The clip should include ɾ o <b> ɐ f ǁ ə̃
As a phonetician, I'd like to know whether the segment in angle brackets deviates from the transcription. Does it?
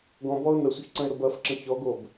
no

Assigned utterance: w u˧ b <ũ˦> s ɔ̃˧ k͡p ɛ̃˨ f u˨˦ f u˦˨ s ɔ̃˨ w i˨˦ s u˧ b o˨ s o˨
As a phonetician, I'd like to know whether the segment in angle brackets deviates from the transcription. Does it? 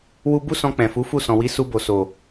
yes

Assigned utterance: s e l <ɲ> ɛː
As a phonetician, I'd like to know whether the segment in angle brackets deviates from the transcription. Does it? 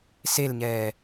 no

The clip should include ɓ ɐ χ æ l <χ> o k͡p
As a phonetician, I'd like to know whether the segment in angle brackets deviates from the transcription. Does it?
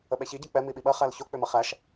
yes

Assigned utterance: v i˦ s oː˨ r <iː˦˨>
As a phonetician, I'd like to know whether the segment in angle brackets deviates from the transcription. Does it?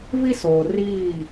no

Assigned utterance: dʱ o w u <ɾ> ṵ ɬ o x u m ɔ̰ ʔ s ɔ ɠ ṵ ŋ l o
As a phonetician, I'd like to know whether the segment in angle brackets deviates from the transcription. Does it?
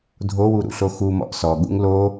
no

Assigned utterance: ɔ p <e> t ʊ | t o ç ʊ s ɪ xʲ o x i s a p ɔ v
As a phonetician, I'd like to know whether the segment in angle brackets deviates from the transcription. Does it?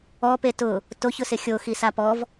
no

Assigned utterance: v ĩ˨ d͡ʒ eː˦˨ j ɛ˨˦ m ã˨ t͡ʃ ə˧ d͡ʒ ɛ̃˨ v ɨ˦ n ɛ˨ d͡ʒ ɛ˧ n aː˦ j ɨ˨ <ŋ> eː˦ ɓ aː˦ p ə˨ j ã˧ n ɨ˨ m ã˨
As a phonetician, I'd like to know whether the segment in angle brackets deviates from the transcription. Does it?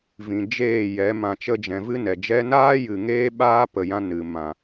no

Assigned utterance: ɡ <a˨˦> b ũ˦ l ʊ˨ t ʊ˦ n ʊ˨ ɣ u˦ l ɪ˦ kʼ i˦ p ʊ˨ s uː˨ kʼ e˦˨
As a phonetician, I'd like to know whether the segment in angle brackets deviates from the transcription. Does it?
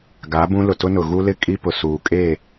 no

